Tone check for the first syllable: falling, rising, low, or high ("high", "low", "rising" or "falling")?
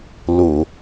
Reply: low